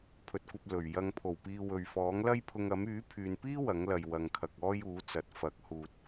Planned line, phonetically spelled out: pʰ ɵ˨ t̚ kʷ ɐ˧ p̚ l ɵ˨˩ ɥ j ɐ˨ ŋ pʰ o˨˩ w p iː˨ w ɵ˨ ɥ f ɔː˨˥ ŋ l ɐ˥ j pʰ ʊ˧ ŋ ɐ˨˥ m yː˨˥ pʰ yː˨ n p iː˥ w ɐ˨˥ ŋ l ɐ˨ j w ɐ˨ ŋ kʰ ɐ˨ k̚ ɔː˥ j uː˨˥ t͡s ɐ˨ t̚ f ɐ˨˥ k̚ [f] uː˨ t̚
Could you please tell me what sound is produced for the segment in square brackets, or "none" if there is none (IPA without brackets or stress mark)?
h